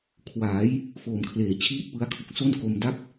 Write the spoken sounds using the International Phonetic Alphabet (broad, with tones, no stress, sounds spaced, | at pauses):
kʰ w aː˩˦ j | f oː˨˩ m kʰ l eː˨˩ t͡ɕʰ iː˦˥ t̚ p ɯ˦˥ a̯ kʰ u˨˩ k̚ s o˥˩ n k o˧ m d a˥˩ k̚